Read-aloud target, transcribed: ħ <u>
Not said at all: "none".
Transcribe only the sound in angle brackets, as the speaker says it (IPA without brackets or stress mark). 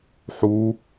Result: u